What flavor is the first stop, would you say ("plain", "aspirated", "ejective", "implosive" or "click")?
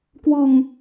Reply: plain